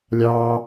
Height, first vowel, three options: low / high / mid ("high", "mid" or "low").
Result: low